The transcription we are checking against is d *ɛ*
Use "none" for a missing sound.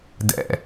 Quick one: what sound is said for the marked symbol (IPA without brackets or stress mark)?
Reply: ɛ̰